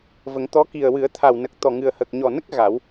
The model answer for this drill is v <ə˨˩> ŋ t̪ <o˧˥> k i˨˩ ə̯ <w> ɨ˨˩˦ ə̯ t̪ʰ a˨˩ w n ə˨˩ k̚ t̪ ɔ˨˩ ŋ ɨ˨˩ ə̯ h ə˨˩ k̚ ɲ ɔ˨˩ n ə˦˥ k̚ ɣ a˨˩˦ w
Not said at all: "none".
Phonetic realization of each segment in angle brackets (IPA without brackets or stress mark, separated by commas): ə˨˩˦, ɔ˧˥, w